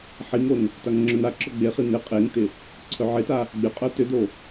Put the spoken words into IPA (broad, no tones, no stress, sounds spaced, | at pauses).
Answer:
ħ i ŋ o n | t a ŋ ŋ͡ǁ œ n a ǁ œ ɡ͡b e χ i n ɪ qʼ e ŋ t ɪ | ǀʰ œ ʕ ɪ t a | ɡ͡b ɪ qʼ œ t ʏ d o